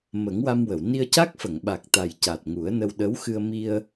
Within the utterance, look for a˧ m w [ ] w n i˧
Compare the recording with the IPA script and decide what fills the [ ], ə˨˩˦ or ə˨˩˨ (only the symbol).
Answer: ə˨˩˨